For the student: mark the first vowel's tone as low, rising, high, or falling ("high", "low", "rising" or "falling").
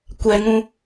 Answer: low